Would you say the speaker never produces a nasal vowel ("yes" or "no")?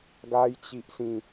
no